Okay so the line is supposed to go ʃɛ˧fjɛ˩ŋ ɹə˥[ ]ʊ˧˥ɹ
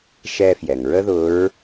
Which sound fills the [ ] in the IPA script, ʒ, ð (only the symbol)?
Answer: ð